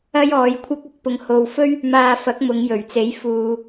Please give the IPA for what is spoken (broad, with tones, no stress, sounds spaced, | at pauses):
ɐ˥ j ɔː˨˧ j kʷʰ ɐ˥ k̚ ɐ˨ k̚ p ʊ˧ ŋ h o˨ w f ɵ˥ ɥ | m aː˧ f ɐ˨˥ k̚ m ʊ˨˧ ŋ j ɵ˨˩ ɥ t͡s e˨˥ j f uː˨